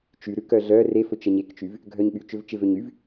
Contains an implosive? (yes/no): yes